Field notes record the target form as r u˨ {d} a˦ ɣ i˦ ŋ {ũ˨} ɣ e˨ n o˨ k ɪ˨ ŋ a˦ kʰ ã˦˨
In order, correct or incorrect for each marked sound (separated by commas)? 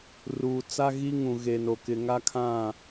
incorrect, correct